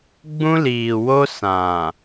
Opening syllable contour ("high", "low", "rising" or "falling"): high